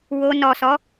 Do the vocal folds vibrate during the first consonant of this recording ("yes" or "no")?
yes